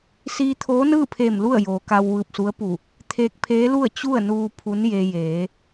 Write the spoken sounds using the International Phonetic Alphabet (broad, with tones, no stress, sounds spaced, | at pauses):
s iː˧ t̪ʰ oː˧˥ n ɯː˥˨ pʰ eː˧˩ m l u˥˨ ə̯ j oː˩ k a˧ w ʋ ɯː˧˩ p̚ s u˧˥ ə̯ p u˧˩ | t̪ʰ eː˧ k̚ pʰ eː˧˥ l u˥˨ ə̯ t͡ɕ u˥˨ ə̯ n uː˧ pʰ u˧˥ n j e˧ j eː˩˧